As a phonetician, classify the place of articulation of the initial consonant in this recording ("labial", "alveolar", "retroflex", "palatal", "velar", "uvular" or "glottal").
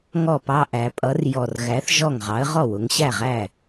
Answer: velar